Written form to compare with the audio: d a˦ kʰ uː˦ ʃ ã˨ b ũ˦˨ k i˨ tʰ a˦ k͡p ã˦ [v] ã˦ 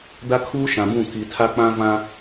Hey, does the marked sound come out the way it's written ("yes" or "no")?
yes